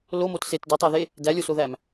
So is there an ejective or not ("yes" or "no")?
no